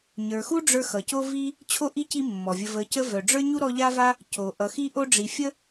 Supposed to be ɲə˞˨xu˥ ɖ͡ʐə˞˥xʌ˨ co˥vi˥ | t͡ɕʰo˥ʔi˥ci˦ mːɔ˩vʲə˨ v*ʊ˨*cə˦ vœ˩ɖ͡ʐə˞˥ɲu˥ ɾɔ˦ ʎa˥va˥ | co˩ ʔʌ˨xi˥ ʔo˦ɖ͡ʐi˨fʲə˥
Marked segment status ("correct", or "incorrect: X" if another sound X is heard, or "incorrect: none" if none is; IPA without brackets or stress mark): incorrect: ə˨